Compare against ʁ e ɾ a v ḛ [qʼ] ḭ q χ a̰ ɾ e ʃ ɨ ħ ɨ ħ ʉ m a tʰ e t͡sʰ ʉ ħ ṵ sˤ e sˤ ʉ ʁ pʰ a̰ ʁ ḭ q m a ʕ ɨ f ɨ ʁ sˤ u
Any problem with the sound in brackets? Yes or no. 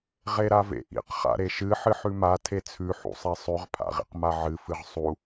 yes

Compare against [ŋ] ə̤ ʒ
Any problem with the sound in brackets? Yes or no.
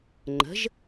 yes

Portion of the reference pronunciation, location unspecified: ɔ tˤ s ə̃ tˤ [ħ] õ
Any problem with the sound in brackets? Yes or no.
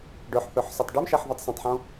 no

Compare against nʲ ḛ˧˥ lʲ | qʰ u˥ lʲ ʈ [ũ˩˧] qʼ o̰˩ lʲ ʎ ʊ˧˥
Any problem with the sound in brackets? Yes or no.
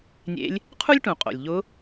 no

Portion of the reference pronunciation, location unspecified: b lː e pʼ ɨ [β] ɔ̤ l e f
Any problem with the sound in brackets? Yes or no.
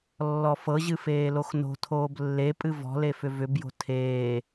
yes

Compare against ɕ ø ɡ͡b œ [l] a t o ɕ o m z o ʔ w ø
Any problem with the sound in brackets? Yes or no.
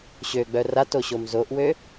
yes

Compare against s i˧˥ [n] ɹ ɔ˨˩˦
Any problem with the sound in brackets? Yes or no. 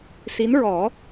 no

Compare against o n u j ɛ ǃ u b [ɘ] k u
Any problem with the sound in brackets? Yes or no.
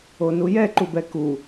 yes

